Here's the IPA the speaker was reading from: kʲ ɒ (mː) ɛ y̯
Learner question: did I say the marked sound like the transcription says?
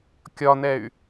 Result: no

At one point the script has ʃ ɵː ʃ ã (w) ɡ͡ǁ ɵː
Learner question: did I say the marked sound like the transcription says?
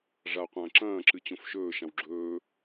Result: yes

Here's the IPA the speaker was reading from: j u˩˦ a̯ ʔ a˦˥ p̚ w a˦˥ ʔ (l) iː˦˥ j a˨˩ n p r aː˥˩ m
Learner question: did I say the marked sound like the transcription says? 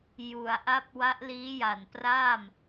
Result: yes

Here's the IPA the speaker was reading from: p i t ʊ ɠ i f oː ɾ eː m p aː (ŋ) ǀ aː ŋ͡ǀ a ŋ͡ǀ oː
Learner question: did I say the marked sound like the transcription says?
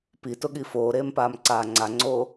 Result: no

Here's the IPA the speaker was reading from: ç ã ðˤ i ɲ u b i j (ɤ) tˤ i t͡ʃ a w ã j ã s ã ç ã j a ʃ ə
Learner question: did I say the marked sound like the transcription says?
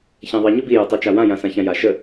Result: yes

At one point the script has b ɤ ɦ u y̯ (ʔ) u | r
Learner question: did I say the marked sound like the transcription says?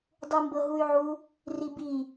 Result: no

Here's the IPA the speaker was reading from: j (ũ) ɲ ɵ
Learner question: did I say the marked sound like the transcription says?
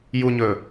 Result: no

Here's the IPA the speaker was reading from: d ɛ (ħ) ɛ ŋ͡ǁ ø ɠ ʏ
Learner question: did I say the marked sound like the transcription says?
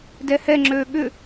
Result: no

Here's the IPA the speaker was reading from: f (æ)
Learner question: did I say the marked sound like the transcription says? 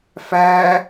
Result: yes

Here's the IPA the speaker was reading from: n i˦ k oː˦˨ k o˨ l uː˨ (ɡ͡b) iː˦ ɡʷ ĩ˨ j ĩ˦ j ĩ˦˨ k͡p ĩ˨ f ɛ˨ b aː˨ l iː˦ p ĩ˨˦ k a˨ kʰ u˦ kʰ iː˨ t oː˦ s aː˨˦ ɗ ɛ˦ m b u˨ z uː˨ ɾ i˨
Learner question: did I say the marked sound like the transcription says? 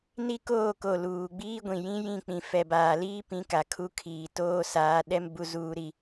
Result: yes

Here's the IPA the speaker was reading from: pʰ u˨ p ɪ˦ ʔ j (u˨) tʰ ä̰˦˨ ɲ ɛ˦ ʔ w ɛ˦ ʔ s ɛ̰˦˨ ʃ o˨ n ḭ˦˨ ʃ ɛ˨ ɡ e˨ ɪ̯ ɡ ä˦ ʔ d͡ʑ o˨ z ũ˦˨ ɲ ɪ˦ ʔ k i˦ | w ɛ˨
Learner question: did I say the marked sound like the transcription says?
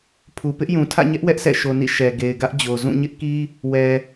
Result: no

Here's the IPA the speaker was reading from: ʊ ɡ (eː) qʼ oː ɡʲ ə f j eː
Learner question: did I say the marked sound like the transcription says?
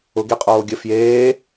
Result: no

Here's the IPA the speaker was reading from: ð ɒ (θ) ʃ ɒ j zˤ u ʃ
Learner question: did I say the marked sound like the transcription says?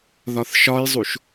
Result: yes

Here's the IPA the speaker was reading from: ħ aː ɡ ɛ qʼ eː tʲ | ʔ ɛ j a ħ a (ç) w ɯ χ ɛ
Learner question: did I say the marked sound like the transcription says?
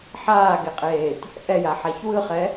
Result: yes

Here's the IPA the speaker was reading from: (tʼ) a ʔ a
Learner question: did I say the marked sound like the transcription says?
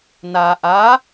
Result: no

